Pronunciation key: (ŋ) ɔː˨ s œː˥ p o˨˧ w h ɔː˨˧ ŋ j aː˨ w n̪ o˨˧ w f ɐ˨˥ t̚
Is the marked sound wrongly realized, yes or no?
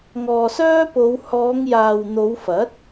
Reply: no